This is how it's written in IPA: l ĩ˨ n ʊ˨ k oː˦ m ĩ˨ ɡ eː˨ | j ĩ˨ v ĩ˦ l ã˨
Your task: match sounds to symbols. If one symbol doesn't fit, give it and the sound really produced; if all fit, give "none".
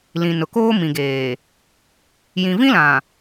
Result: none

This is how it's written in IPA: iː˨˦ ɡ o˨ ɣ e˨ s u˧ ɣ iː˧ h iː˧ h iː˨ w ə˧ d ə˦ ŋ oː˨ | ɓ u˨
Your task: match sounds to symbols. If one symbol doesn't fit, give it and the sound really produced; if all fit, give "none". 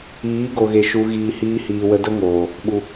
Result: s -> ʃ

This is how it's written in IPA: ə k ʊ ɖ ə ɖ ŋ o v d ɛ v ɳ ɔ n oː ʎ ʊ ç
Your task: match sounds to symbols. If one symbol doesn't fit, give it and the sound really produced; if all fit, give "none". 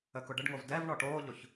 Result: n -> ʈ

